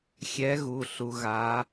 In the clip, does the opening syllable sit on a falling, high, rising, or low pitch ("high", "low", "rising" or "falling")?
rising